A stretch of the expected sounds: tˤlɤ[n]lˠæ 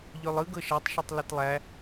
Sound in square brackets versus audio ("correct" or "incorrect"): incorrect